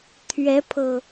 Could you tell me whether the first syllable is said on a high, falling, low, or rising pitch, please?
rising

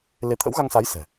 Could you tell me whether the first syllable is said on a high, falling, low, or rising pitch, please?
rising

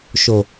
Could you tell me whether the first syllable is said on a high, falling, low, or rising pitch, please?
low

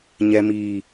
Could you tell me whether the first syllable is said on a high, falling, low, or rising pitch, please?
high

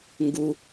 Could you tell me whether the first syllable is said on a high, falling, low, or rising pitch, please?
low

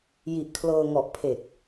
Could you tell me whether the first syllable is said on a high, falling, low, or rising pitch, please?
low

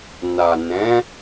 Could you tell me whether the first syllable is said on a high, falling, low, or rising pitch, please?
low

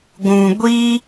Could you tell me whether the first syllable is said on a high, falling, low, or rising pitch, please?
low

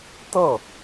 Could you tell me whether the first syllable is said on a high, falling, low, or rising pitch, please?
falling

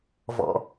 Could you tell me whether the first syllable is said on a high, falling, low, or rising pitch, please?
low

